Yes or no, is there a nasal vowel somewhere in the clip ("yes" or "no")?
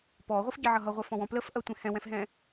yes